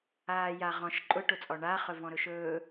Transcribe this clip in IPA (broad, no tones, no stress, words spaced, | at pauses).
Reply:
aːjaʁɔ̃ʃ ǃʼʊʈʊt͡sʼɔ ɳaχɵ vɔ̃ɾɵʃɵː